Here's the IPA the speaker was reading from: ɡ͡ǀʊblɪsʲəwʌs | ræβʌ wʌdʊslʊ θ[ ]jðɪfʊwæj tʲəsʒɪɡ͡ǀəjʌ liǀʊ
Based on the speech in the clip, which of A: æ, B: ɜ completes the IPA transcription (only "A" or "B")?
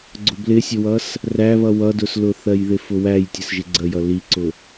B